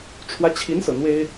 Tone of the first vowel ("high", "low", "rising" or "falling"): rising